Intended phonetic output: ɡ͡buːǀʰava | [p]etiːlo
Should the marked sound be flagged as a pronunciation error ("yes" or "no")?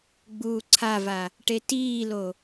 yes